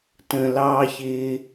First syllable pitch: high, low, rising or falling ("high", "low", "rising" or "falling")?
low